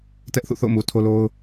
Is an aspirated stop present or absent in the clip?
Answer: present